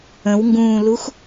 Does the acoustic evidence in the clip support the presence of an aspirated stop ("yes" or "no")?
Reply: no